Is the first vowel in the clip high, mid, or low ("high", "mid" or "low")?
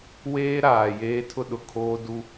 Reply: mid